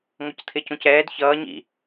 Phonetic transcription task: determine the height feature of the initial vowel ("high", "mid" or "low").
mid